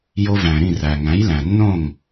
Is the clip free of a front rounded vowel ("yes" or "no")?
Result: yes